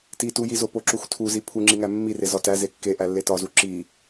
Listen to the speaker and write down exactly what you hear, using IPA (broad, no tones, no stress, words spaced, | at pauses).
titujizo poǁuxtʰuzi pʰuŋ͡ǁiŋæ mːire zɒtæ zekːe ʔælːetɒzu ǁi